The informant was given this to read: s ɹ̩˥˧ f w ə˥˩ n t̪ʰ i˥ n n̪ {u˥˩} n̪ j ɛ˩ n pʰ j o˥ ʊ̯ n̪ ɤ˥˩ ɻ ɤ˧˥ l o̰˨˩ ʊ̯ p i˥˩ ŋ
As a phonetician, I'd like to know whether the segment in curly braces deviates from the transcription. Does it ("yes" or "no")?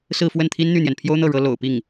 yes